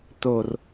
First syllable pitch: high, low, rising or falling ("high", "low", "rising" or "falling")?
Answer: low